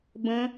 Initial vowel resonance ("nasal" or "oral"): nasal